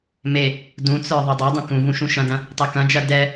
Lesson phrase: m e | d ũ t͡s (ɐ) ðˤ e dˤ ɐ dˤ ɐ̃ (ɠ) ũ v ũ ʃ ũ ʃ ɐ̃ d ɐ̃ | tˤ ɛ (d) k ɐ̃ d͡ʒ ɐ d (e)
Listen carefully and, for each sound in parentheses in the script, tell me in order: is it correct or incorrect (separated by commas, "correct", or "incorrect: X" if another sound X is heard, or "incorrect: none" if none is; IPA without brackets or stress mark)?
incorrect: ə˞, incorrect: k, incorrect: none, incorrect: ɛ